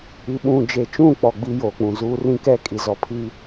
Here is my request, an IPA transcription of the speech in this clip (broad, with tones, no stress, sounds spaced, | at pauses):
i˨˦ ɓ ũ˨ d͡ʒ e˨ t͡ʃ ũ˦˨ k͡p ɔ˨ ɡ͡b iː˦ j oː˨ k͡p ũ˨ z uː˦ r ĩ˦ k ɛ˦ kʼ i˨ z ɔ˨ pʰ iː˦